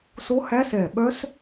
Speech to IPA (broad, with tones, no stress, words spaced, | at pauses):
so˦˥hæ˦˥sɛ˧˩ɓœ˦˥s